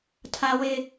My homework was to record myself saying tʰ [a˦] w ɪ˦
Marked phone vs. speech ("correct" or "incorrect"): correct